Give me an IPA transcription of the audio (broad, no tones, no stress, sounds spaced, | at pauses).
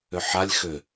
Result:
ʏ ħ a lʲ x ʏ